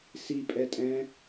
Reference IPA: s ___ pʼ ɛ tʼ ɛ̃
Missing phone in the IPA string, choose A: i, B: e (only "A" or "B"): A